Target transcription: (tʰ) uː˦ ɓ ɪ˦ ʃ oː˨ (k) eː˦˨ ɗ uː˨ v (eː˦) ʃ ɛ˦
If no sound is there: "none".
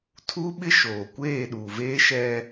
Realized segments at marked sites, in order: tʰ, kʷ, eː˦

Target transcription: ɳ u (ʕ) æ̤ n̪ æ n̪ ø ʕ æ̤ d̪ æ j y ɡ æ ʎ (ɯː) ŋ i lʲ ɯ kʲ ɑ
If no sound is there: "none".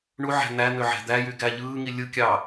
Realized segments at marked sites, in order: ʕ, ɯː

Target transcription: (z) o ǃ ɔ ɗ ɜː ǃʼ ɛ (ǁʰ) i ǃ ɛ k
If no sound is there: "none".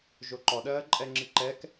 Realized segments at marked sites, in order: ʒ, ŋ͡ǁ

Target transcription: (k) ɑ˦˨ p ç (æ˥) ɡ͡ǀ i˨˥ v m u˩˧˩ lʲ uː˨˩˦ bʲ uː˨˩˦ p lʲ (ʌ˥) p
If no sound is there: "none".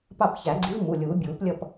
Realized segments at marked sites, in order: p, æ˨˩˦, ʌ˦˨

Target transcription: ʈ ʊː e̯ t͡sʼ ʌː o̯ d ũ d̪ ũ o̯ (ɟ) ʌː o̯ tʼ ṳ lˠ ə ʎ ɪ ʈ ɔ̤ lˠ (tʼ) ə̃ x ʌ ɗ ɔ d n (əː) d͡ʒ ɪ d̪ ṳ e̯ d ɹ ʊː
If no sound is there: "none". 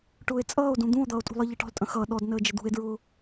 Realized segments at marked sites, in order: d̪, tʼ, əː

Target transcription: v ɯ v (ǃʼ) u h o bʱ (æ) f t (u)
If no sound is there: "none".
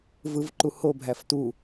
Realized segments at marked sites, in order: ǃ, æ, u

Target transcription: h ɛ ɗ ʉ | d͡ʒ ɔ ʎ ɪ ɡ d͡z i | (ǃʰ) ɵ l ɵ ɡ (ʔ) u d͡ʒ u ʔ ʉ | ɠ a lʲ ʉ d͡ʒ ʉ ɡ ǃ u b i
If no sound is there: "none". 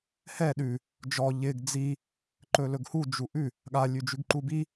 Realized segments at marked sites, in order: ǃ, h

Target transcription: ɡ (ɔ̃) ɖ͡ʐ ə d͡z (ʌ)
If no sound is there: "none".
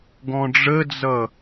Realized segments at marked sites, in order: ɔ̃, ʌ

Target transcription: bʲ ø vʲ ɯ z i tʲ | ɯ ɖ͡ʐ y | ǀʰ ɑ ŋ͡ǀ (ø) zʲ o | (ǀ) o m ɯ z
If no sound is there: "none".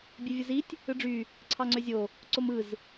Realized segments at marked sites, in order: ø, ǀ

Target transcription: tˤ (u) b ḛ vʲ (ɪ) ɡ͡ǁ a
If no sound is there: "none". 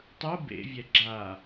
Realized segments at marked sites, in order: ɯ, ɛ

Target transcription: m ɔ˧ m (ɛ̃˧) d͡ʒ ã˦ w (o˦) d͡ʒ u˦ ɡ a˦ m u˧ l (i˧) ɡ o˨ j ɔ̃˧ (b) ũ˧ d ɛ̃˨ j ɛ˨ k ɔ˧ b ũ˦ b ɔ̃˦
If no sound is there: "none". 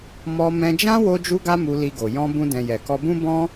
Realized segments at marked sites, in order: ɛ̃˧, o˦, i˧, b

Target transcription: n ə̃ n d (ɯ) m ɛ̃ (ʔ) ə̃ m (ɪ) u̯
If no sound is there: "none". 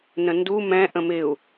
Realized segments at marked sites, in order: u, ʔ, ɪ

